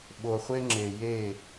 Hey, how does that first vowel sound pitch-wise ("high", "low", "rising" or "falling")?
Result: low